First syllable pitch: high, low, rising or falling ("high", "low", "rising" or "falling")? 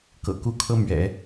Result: low